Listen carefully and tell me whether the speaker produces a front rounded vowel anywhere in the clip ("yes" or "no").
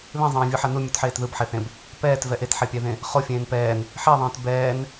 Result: no